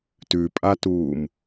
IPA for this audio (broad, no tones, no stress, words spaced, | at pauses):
tʉpʼatuːm